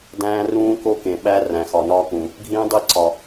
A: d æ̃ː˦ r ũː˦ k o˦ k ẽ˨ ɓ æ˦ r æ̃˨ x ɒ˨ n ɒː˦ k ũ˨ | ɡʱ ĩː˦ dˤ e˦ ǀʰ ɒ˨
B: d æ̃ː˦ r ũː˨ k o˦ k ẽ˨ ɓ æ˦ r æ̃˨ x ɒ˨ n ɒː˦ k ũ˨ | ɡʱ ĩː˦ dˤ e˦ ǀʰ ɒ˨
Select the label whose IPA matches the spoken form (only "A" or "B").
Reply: A